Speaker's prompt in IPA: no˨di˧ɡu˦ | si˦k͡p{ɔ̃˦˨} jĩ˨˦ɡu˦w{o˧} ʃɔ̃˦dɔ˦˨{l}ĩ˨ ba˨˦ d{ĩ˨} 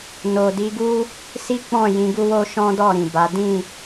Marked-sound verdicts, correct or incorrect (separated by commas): correct, incorrect, incorrect, incorrect